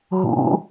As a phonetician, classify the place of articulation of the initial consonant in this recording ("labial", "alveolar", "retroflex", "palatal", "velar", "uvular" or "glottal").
glottal